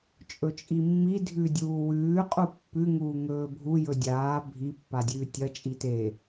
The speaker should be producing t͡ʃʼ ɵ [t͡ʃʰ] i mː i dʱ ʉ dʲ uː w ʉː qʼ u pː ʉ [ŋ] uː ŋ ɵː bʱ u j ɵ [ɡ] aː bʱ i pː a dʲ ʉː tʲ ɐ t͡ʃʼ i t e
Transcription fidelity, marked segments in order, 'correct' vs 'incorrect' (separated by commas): incorrect, correct, incorrect